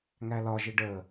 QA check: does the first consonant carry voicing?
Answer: yes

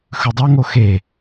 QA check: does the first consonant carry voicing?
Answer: no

